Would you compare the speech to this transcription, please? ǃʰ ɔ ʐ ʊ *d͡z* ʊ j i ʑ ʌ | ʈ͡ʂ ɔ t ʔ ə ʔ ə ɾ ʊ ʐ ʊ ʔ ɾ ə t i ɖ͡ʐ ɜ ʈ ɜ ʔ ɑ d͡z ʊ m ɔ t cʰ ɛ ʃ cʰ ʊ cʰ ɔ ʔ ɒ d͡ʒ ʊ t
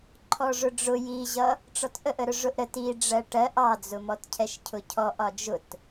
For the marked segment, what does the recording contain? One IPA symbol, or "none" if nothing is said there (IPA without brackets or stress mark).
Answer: ɖ͡ʐ